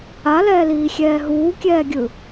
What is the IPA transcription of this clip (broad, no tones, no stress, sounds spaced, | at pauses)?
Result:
a l ɛː l iː xʲ ɛː ɦ uː kʲ ɛː ɡʲ ɯ